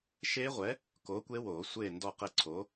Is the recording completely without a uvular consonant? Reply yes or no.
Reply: no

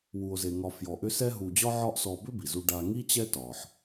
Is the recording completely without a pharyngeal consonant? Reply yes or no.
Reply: no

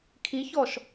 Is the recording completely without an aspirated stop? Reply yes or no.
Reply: no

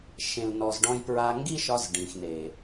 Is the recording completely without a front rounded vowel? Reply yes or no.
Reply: yes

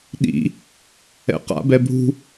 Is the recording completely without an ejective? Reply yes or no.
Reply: yes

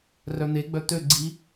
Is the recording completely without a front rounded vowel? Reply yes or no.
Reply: no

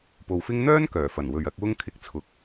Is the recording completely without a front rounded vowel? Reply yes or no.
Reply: no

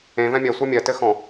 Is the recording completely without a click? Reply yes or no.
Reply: yes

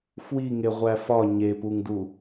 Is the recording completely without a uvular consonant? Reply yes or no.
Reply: no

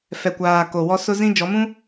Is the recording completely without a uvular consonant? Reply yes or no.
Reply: yes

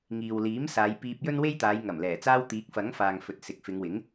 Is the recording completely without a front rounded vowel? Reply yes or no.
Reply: yes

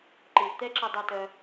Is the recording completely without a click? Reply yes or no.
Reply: no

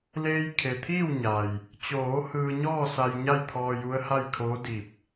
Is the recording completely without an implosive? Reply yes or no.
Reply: yes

